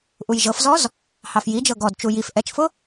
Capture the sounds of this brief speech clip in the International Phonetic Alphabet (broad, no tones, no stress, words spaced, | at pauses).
ʔujʒɤfzɔz | hɑfjid͡ʒɤ ɡɔdt͡ʃu jif ʔɛt͡ʃfʊ